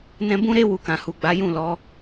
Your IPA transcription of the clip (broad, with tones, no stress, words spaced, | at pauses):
nɛ̃˧bũ˦ɾe˦ wu˧kã˨hu˨ɡ͡ba˨˦ jũ˦˨lɔ˨˦